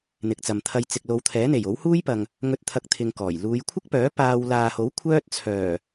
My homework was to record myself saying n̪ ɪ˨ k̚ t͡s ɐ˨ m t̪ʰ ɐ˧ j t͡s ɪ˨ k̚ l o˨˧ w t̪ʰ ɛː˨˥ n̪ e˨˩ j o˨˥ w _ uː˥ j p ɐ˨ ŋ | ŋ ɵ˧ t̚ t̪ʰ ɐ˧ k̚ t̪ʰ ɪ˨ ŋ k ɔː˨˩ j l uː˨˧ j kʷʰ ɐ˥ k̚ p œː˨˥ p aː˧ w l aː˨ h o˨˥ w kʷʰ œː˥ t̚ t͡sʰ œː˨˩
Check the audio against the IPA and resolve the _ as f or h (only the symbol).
h